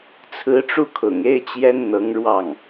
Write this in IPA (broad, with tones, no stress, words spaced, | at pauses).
t͡sʰɹ̩˧˥ʈ͡ʂu˥˩kʰʊ̰˨˩ŋ e˥ɪ̯t͡ɕjɛ˥n n̪ɤ˧˥ŋɻwɑ˥˩ŋ